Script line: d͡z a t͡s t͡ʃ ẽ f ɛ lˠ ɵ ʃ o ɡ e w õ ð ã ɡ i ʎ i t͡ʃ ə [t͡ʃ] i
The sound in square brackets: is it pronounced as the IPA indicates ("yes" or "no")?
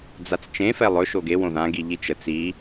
no